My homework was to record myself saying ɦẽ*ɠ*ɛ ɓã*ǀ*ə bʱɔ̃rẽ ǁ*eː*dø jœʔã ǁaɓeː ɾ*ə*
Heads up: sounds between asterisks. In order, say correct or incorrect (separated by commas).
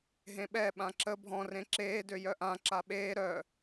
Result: incorrect, incorrect, correct, incorrect